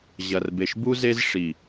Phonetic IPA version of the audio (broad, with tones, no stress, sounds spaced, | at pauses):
ʑ ɐ˨ r b e˨ ʃ b u˦ z e˦ z ʂ i˨